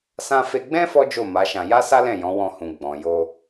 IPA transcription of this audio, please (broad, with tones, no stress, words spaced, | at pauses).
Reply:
sã˧fe˧ɡ͡bɛ̃˦ fɔ˦d͡ʒo˦˨ ma˨˦ʃã˧ ja˦sa˦lɛ̃˦˨ jɔ̃˨˦ wɔ̃˧hũ˨ ɡ͡bɔ̃˨jo˧